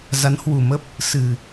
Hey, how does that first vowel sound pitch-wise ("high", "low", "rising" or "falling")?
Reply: rising